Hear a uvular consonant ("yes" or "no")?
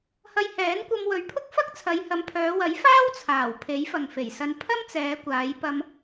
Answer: no